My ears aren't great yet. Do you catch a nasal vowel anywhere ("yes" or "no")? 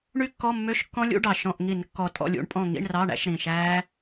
yes